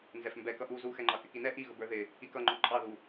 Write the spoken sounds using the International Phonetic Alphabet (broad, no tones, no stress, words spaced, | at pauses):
nzɛfmbɛ kʌʔu zuxɛŋ͡ǃɑ kɪkinɛ ʔiɣʊb ə˞ðɪ | ikʌŋ͡ǃɔ ǃʼɑðu